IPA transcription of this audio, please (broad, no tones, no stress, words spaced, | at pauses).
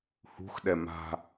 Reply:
hṳxɗɛ ma̤